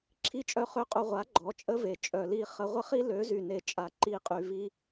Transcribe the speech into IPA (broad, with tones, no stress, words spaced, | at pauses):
ǁʰi˦t͡ʃʼœ˦χø˦qʼu˧ ʁʷa˨˦ ɡ͡ǃɔ˨˦t͡ʃʼə˦ve˨ t͡ʃʼœ˨li˦˨χə˧ ʁʷə˦χi˦lø˨˦ zy˨ne˨t͡ʃʼa˨ ǃi˧ qʼy˨ vi˦